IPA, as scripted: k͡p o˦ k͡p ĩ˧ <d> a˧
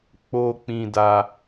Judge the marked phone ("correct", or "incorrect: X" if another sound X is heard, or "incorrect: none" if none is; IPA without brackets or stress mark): correct